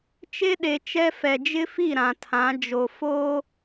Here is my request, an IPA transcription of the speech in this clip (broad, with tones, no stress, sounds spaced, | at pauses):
t͡ʃ e˦ ɗ e˨ t͡ʃ ɛ˦ f ɛ˨ d͡ʒ ɪ˦ f i˦˨ ɾ ã˨ tʰ ã˨˦ d͡ʒ o˨ f oː˦